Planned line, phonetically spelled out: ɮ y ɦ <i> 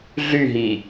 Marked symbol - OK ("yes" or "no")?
yes